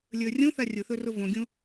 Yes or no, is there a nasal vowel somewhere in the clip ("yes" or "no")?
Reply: yes